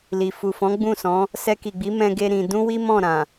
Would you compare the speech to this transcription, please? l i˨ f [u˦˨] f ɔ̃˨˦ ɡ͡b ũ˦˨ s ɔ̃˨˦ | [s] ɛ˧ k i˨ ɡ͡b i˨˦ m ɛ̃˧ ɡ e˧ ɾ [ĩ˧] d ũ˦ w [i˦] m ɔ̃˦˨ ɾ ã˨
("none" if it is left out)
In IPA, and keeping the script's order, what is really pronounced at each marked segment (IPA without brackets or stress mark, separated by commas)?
u˨, s, ĩ˧, i˦